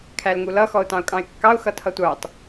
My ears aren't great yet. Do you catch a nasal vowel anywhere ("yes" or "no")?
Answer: yes